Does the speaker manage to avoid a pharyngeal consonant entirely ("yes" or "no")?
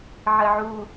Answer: no